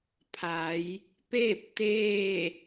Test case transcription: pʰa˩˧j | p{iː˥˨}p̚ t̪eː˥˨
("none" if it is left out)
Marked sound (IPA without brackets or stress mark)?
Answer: eː˥˨